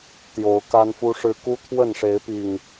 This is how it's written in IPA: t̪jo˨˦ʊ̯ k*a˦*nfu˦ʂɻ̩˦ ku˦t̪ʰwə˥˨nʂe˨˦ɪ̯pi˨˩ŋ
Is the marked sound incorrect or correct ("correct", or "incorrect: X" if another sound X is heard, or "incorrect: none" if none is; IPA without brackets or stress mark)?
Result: correct